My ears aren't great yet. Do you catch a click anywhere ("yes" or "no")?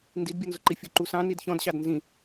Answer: yes